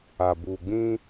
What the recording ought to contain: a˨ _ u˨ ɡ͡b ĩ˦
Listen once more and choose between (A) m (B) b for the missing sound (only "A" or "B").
B